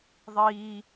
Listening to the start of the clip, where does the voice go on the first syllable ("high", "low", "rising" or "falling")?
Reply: high